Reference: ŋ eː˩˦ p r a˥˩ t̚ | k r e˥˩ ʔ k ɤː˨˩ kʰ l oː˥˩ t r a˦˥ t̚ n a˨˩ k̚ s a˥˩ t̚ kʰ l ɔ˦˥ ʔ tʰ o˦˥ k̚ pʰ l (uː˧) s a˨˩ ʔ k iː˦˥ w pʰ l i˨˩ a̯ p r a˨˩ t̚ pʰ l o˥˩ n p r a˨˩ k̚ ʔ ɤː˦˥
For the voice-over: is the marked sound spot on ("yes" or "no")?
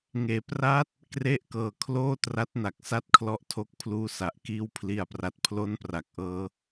yes